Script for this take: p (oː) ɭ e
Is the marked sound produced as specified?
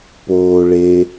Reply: yes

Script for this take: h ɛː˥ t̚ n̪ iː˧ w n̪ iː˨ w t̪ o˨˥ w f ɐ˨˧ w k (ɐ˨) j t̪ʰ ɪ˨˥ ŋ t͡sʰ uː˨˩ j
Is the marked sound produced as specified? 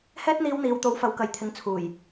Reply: yes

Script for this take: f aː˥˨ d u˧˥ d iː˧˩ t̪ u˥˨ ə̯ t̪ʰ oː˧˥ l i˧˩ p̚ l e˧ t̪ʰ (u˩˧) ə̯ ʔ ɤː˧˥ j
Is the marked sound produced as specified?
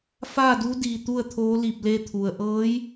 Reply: no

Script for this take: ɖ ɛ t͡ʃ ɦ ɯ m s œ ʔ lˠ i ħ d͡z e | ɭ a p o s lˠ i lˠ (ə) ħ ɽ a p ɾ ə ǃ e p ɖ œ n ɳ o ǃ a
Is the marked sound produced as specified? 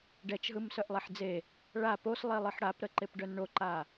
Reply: no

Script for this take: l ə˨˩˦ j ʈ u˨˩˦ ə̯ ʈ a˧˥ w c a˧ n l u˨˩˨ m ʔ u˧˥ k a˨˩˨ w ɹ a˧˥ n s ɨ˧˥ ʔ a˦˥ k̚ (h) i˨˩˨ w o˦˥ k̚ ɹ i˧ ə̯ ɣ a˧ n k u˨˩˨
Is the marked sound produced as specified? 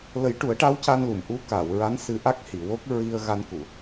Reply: yes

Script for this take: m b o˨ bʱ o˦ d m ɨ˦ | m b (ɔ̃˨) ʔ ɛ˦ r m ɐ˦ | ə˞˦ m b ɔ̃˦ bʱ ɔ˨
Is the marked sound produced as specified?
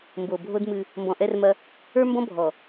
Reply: yes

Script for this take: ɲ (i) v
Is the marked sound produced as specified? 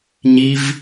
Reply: yes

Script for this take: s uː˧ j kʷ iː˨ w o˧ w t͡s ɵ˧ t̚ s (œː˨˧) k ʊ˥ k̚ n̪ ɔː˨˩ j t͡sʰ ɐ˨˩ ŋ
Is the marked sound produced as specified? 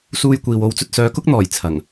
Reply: yes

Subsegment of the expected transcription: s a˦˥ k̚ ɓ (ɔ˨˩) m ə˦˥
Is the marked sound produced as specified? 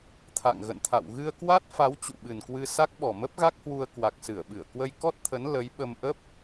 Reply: yes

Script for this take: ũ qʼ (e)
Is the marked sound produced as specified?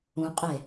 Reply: yes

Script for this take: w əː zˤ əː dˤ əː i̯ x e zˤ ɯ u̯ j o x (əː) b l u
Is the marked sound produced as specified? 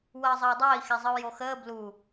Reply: yes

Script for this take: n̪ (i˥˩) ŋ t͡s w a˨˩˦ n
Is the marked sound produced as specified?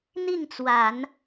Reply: yes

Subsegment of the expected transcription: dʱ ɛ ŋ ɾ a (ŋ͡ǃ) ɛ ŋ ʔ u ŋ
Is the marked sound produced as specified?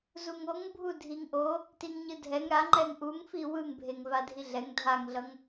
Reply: yes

